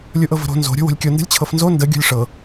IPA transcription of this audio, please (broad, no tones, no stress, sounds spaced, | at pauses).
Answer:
lʲ u ʔ ɤ v ə̤ ɾ o̤ n z o̤ ɾʲ o̤ w o̤ lʲ kʲ o n d ə̤ lʲ t͡ɕʰ ɤ f n z o n d ə ɡʲ o̤ lʲ ʂ ɤ